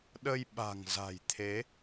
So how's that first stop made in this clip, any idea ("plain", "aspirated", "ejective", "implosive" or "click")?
implosive